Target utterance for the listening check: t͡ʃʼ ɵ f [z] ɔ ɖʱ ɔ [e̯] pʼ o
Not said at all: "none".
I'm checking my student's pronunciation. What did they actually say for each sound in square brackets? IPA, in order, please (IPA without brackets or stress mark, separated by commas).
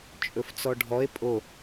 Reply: t͡s, e̯